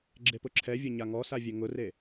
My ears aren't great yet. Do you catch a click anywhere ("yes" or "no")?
yes